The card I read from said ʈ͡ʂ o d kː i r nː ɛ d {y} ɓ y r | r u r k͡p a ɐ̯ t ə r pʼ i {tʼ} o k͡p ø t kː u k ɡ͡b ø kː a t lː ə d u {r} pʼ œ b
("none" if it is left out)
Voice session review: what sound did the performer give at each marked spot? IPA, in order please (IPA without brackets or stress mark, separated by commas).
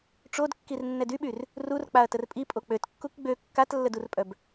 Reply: y, pʼ, r